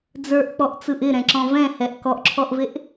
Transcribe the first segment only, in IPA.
d͡z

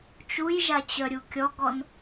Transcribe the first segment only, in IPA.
t͡ʃ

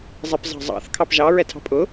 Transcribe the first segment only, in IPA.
zˤ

